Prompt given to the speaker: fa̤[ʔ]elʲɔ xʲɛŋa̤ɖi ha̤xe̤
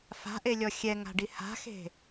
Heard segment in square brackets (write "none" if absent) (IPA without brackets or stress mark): ʔ